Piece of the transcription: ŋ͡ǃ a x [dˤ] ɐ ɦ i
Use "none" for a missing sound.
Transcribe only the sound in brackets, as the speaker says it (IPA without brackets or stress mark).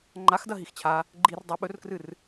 d